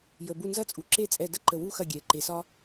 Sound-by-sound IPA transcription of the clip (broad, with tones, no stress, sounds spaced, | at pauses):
j ə˩ b u˧˩ n z ɐ˥˩ t͡sʼ u˩˧ ǁ e˥˩ t͡sʼ ɛ˧˩ d ə˥ ǃ ə˧˩ w u˥ x ɐ˥˩ ɡʲ ɛ˩ ǃ e˩˧ s ɒ˥